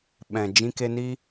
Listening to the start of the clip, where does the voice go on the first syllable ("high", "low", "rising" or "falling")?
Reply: low